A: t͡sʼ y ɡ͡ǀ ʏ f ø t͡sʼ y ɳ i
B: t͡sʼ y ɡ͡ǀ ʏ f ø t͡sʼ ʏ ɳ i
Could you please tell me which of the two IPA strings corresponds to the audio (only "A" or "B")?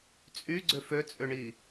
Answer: B